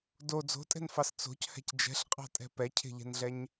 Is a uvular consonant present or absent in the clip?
present